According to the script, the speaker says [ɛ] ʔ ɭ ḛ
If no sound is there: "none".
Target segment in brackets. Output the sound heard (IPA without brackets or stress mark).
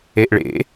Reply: e